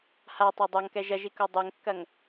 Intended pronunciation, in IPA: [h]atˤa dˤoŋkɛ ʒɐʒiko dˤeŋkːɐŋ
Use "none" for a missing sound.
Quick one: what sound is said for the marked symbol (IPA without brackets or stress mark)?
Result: h